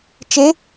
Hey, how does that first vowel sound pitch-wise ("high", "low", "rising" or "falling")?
rising